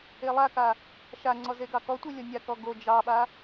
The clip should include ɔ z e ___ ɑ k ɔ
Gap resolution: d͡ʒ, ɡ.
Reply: ɡ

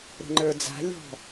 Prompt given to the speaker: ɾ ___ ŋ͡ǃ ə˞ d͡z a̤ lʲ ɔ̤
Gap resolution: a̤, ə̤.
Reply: ə̤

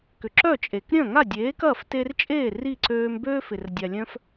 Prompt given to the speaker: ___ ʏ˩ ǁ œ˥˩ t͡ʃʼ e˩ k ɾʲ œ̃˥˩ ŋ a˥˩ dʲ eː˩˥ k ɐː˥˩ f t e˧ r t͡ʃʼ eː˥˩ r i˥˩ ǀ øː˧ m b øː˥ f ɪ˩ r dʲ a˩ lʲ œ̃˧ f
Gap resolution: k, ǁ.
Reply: k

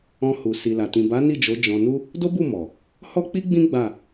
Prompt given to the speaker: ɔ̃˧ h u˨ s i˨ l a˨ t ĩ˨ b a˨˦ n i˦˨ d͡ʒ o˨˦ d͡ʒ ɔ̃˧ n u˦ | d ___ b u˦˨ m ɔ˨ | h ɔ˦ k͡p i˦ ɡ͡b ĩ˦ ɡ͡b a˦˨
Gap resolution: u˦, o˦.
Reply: o˦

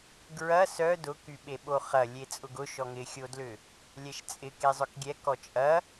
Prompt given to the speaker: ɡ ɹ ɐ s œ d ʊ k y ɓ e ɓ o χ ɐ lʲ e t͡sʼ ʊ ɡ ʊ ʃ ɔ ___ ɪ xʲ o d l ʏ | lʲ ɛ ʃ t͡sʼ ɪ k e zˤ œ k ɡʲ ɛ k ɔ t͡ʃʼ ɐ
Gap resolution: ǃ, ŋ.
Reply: ŋ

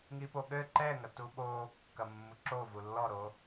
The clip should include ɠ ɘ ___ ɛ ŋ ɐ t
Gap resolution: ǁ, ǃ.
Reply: ǃ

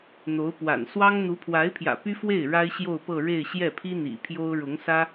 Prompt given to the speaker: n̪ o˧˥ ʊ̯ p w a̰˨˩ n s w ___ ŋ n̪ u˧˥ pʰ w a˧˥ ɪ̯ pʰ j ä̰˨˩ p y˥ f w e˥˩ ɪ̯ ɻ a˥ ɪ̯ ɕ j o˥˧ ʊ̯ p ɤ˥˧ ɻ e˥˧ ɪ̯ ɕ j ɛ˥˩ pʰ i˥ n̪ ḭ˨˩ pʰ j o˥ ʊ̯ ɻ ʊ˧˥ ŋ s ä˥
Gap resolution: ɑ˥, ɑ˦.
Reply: ɑ˥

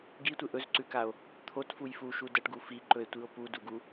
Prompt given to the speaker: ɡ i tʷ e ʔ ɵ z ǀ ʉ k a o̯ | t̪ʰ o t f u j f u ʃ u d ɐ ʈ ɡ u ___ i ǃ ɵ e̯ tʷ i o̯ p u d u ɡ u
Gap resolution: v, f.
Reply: f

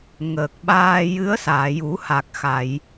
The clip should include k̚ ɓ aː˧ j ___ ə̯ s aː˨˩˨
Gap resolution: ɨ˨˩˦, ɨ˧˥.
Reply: ɨ˧˥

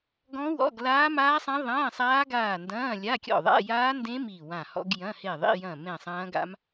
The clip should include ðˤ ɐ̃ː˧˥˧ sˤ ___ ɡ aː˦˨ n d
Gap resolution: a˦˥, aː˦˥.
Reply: aː˦˥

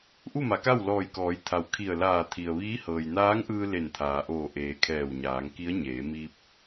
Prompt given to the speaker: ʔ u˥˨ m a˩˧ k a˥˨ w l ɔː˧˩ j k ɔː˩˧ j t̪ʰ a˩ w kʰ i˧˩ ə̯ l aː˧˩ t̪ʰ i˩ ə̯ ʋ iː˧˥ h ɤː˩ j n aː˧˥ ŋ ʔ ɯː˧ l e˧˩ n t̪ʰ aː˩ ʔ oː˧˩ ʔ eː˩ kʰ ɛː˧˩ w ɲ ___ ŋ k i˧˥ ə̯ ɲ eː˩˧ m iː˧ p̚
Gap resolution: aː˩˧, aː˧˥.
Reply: aː˩˧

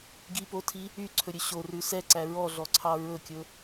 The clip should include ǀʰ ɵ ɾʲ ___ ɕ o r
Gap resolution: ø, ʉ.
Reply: ø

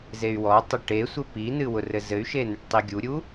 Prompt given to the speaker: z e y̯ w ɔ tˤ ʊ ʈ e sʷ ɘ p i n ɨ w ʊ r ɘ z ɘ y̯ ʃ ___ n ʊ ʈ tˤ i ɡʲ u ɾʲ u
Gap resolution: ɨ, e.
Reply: e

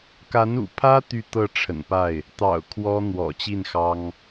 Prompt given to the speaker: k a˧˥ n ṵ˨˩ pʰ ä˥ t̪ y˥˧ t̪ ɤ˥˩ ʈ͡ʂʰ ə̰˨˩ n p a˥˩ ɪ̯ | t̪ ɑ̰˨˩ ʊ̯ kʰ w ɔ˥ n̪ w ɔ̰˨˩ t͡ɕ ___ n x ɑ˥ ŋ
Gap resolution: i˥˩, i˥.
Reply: i˥˩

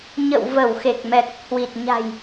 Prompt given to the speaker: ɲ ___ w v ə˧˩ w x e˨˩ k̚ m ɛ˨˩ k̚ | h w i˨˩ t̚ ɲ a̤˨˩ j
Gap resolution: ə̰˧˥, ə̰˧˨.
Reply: ə̰˧˨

